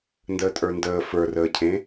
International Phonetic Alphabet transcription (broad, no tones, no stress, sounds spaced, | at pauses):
n d əː tʼ ə˞ n d əː f ə˞ r əː cʰ ẽ